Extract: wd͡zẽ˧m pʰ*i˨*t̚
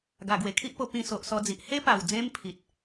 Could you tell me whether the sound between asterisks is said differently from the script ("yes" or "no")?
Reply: no